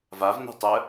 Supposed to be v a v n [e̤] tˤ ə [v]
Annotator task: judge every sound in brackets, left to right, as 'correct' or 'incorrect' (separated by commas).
correct, incorrect